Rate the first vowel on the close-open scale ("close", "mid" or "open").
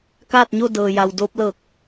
open